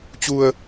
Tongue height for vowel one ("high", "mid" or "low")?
high